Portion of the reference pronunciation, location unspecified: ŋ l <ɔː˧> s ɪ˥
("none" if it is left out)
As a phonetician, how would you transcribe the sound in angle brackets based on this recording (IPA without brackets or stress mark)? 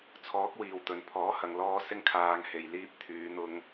ɔː˧